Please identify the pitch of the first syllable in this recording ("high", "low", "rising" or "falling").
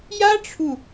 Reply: high